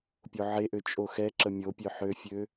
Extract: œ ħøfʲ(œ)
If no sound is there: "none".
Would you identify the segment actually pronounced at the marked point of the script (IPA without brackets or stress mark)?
ø